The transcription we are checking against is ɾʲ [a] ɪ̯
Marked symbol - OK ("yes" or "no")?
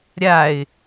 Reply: yes